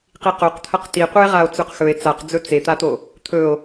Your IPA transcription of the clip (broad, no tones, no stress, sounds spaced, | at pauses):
q i q o q t̪ʰ ɐ q t i qʷ ɨ e̯ ʁ a o̯ t͡s ʉ q x ɵ e̯ t͡s a q d͡z ɵ t͡s e t̪ a t̪ o | t̪ʰ ɵ o̯